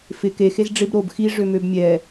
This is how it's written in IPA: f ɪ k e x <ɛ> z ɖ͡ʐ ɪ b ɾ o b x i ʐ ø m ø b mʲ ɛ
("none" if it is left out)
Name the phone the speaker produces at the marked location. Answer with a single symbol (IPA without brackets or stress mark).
e